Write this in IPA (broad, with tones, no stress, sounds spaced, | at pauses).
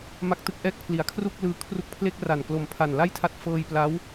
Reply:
m a˥˩ k̚ t ɯ˥˩ k̚ ʔ ɛː˥˩ k̚ pʰ l i˩˦ a̯ kʰ r u˥˩ k̚ l ɯː˧ kʰ r u˦˥ k̚ pʰ l e˥˩ k̚ r a˨˩ n k l o˨˩ m pʰ a˨˩ n l a˥˩ j tʰ a˦˥ t̚ f ɤː˧ j p l a˦˥ w